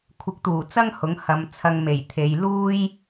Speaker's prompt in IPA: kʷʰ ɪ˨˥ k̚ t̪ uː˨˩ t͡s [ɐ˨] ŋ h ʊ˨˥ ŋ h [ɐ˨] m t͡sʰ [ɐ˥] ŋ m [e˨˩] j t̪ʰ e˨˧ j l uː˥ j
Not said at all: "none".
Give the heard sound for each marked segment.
ɐ˥, ɐ˨˧, ɐ˧, e˨˩

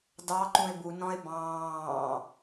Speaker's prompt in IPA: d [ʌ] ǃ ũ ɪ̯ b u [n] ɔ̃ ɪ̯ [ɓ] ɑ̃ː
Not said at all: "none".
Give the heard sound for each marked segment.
ɑ, n, b

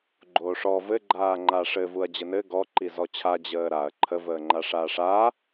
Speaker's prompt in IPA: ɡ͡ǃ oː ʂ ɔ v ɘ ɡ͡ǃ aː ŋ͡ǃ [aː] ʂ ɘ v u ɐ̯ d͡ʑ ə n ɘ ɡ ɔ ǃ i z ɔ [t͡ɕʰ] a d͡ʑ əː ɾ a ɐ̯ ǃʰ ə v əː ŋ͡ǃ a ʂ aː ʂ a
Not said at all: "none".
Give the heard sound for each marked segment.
aː, t͡ɕʰ

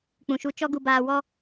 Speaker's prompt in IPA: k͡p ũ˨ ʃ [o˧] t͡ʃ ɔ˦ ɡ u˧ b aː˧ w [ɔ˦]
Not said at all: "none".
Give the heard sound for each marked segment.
u˧, ɔ˦

